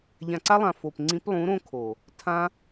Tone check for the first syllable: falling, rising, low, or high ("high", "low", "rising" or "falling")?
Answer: low